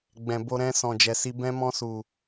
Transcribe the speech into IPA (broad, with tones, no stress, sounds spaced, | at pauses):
ɡ͡b ɛ̃˨ b o˧ ɾ ɛ̃˧ s ɔ̃˨ d͡ʒ ɛ˨ s i˧ b ɛ̃˧ m ɔ̃˧ s u˨